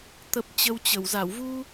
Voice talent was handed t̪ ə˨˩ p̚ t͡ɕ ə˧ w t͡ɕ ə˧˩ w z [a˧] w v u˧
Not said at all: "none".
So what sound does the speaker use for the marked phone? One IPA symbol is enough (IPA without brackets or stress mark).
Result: a˧˩